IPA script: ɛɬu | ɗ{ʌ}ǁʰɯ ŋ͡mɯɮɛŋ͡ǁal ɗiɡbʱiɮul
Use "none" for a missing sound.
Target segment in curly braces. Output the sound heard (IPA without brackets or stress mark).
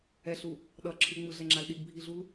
ʌ